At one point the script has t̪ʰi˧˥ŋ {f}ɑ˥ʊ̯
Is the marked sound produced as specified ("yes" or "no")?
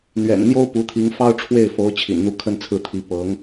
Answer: yes